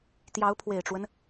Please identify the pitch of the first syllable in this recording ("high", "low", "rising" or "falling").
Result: rising